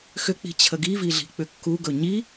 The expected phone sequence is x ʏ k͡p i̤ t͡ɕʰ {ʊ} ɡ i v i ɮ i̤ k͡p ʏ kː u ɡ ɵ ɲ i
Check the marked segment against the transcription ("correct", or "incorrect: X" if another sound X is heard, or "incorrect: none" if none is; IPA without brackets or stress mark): incorrect: ə